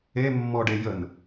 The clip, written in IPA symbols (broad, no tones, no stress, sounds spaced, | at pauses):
e mː ɔ ɖ e j ə n